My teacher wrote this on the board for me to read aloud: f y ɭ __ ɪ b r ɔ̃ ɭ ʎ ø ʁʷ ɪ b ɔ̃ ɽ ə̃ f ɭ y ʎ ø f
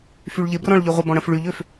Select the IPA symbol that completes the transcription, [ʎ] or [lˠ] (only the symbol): ʎ